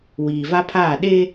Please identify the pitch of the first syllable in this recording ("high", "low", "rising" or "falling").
low